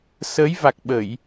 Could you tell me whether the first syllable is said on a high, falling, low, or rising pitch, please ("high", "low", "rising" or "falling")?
rising